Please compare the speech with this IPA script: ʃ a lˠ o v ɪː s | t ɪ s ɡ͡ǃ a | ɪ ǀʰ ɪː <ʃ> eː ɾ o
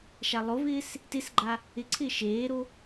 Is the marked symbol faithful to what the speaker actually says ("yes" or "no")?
yes